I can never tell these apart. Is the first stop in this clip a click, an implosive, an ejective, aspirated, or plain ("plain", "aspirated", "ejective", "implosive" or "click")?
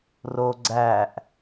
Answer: click